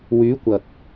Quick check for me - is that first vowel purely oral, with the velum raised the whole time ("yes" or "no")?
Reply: yes